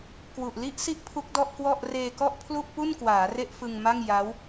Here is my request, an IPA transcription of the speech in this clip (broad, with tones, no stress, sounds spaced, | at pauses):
k w u˨˩ ʔ l i˥˩ ʔ s i˥˩ ʔ pʰ u˦˥ k̚ d ɔ˥˩ ʔ k w ɔ˥˩ ʔ r eː˧ k ɔ˥˩ ʔ pʰ l u˥˩ ʔ p u˥˩ n k w aː˩˦ r e˥˩ ʔ f ɯ˧ ŋ m a˥˩ ŋ j a˦˥ w